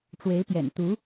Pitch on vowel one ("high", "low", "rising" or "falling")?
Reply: rising